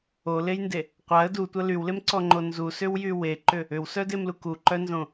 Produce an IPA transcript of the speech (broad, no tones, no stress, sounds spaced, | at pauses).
o l e j n d e | qʷ a ə̯ d u tʷ ɐ l y w l e m ǀ ɔ ŋ͡ǃ o n z u s ʏ w j y w e ǃ ʏ | ʏ w s œ d e m l u k u ǃ œ n z õ